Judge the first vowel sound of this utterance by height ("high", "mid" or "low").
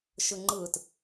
high